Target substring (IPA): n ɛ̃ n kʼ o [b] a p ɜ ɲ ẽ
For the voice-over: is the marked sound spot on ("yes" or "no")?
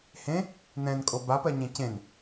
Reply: yes